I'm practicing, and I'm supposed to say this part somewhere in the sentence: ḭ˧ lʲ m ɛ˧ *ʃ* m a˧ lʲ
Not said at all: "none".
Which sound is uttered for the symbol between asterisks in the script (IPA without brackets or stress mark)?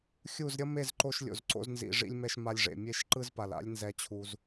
ʃ